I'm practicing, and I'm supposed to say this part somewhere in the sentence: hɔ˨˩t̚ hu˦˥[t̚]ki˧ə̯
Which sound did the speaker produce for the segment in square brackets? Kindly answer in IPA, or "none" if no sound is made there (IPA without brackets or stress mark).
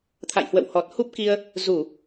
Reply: p̚